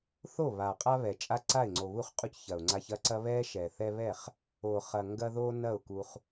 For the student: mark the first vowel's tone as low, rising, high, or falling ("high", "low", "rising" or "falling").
falling